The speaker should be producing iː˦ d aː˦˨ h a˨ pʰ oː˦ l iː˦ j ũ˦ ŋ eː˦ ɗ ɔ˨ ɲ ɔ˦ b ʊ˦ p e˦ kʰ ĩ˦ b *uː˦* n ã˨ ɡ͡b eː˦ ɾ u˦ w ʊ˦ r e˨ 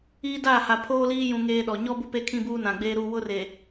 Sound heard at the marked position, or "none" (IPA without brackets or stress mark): uː˦